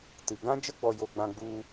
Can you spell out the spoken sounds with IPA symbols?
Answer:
t ɨ˨ ɡ ã˦ d͡ʒ ə˦ ɡ͡b ɔ˦ j o˦ ɡ͡b ã˦ ɡ͡b u˦

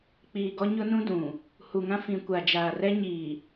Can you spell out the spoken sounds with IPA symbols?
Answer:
k͡p iː˨ ɡ ɔ˦ ɲ ʊ˦ n ũ˦ d ũ˨ | h u˨ ŋ ã˦ f ĩ˨ kʷ a˨ d͡ʒ aː˨ r ɛ˦ ɲ iː˨

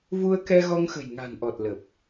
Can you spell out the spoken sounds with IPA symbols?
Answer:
v u˧ ə̯ k ɛ˧ ɣ ɔ˧ ŋ x ə̤˨˩ j ŋ a̤˨˩ n ʔ ɔ˨˩ t̚ l ə˨˩ p̚

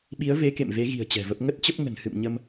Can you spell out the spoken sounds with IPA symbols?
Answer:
ɓ i˨˦ ə̯ v e˨˦ k ḛ˧˨ m v e˨˦ ɣ i̤˨˩ ə̯ t͡ɕ ɛ̤˨˩ v ə˦˥ p̚ ŋ ə˦˥ t̚ t͡ɕ ə˦˥ p̚ ŋ ə̤˨˩ n h ɨ̰˧˨ m ɲ ə˧ m

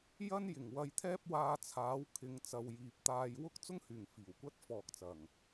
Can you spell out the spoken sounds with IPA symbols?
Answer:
j ɐ˥ n j ɪ˨˩ ŋ w ɐ˧ j t̪ʰ ɛː˥ p̚ w aː˧ t͡sʰ aː˨˥ w kʰ ɪ˨˧ ŋ t͡s ɐ˨ w j iː˨ p̚ t̪ aː˧ j w ʊ˥ k̚ t͡s ʊ˥ ŋ h yː˨˩ ŋ f iː˨˩ w kʷ ɐ˥ t̚ f ɔː˨ k̚ t͡s ɐ˨˩ ŋ

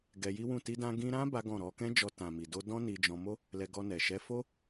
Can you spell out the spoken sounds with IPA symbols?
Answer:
ɡ ɛ˧ j i˦ w ũ˦˨ t i˧ d ã˧ ɡ ĩ˧ ɾ ã˦ b a˦ ɡ ɔ̃˦˨ ɾ ɔ˧ k ɛ̃˦ d͡ʒ ɔ˧ t ã˨ m i˨ d o˧ d ɔ̃˦ n i˧ d͡ʒ ɔ̃˧ m o˦ | l ɛ˧ ɡ ɔ˧ n ɛ˨ ʃ ɛ˨˦ f o˦

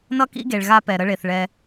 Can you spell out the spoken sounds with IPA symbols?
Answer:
n ʌ˦ k ḭ˦ ɡ e˨ ɭ ɣ a˦ p ɛ˨ ɾ ə˦ ɭ e˨ θ ɭ ɛ˦

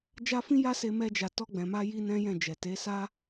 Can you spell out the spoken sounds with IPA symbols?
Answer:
d͡ʒ a˦ f ĩ˦ j a˦ s e˧ m ɛ˧ d͡ʒ a˨ t ɔ˧ ɡ͡b ɛ̃˨ m a˧ j i˦ n ɛ̃˦ j ɛ̃˦˨ d͡ʒ ɛ˨ t e˨˦ s a˦

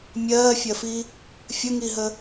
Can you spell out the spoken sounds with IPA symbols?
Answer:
mʲ ɜː fʲ ɜ f i | fʲ ə ŋ i ɦ ə

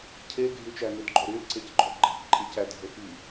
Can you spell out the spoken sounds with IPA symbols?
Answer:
cʰ e ɡʱ y t͡ʃ æ n y d ɡ͡ǃ o ɾ y l ǀ e c ɡ͡ǃ o ɡ͡ǃ e̤ f ǃʼ i c æ dʱ ø f i

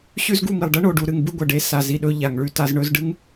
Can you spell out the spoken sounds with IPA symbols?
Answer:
ɕ ʉ˦ z ɡ u˦˨ m i˨ lˠ ɖ ɐ˦ ɳ o˨ ɖ u˨ ɾ ɨ˨ ŋ b ɨ˦ ɡʷ ɐ˨ ɖ e˦ s a˨ z i˦ ɗ ɵ˦ ʎ a˨ ŋ ɭ ʉ˦˨ t a˦ z ɳ ɵ˦ z ɖ ɨ˦ ŋ

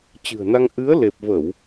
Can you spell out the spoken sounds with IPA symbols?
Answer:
t͡ɕ ɨ̤˨˩ ə̯ n a˧ ŋ ʔ ɨ˨˦ ə̯ l e˨˩ p̚ v ə˧˩˨ w

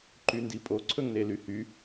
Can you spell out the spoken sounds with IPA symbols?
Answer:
ǃ y n d i pʼ o ǀʰ ɵ ŋ n e l y h y

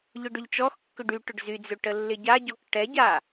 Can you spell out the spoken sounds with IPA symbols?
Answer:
ʎ ʊ ɖ ʏ ʎ t͡ʃ ɔ x kː ʏ ɖ y ʈ ʊ ɖ z y d͡z ø ʈ ə lː ɪ ɟ a ɟ ɔ k ʈ ɛ ɟ a

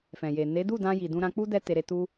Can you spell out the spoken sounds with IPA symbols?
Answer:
f ɛ̃˨ j e˨ n e˨˦ d u˦˨ d ã˧ j i˨ d ũ˧ ɾ ã˧ k͡p u˦ d ɛ˦ t e˧ ɾ e˧ t u˦

